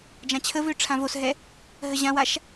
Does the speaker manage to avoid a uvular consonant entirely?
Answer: yes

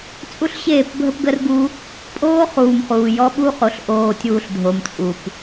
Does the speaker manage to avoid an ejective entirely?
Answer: no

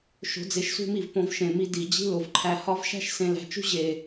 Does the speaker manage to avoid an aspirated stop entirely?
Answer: no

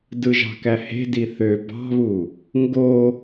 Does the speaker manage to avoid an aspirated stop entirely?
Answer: yes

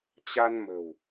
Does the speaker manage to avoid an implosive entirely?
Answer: yes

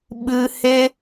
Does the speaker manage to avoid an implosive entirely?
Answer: no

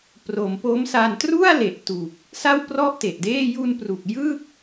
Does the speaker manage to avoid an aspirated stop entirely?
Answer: yes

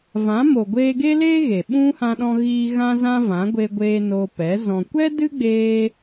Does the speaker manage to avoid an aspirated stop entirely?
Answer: yes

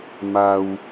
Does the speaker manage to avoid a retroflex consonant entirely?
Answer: yes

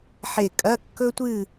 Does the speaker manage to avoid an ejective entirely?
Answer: no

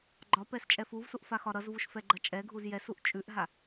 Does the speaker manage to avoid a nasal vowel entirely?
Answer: yes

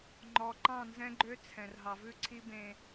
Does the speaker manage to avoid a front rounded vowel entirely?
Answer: no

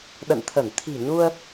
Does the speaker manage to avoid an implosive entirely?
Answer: no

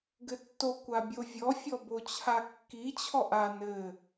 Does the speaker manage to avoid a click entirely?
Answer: yes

